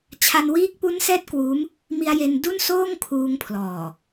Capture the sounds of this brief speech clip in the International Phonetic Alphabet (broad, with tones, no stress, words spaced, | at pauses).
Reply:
t͡ɕʰa˧nwiː˦˥k̚pu˦˥nsɛː˦˥t̚ kwuː˦˥m | mi˧a̯je˧n du˥˩nsoː˥˩ŋkʰuː˧ŋpʰlɔː˨˩